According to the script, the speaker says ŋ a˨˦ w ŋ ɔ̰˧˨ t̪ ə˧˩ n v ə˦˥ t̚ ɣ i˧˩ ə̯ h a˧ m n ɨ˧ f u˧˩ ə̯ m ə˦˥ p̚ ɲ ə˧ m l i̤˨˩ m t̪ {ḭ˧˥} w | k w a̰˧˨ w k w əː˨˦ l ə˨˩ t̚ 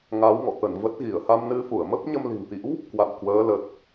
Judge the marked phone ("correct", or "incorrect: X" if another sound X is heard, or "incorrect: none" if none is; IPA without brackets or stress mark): correct